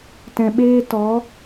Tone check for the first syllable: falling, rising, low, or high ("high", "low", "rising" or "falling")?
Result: low